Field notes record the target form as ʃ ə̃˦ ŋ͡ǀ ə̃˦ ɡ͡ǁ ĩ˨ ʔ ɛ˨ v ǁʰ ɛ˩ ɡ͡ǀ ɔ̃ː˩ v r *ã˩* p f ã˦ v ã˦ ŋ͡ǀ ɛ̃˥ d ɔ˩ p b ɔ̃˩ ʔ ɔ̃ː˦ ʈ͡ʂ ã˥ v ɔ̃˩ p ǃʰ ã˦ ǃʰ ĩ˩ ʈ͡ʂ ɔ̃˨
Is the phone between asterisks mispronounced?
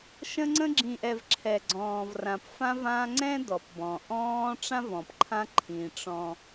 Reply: no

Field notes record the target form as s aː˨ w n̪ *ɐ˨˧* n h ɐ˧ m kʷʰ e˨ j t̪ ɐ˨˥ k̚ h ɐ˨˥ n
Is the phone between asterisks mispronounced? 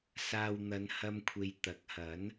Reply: no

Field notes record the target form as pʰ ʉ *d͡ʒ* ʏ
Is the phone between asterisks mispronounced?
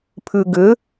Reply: yes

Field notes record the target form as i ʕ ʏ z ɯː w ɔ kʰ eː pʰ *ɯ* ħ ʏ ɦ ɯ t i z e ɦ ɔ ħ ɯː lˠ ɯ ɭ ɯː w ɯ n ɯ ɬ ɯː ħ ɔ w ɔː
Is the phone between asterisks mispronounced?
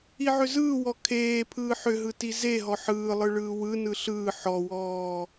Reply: yes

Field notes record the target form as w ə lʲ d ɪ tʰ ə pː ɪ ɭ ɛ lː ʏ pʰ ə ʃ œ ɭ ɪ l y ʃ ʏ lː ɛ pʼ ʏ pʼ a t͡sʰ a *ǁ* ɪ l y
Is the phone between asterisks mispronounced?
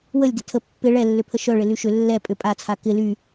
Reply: yes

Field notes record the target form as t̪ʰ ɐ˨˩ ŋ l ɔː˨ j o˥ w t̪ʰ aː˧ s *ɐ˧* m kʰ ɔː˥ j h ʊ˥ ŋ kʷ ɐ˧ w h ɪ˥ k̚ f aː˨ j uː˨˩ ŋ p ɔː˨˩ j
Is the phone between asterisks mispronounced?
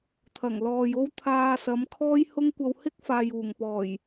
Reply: yes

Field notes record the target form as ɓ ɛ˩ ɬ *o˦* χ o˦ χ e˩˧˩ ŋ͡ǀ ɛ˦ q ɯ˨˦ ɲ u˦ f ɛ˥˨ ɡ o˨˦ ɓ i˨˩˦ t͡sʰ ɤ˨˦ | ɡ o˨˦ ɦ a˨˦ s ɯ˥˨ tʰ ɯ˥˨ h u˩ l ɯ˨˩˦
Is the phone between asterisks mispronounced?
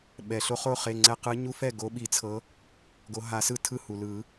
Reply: no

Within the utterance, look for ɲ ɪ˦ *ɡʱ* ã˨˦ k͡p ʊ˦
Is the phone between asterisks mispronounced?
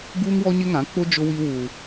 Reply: yes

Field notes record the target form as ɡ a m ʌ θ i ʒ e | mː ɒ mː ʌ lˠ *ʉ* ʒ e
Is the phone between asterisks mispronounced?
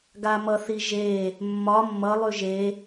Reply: no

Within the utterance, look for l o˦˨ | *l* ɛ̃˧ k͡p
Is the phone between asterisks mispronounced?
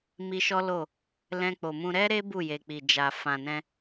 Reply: no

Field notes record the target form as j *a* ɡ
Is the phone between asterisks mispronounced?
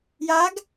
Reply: no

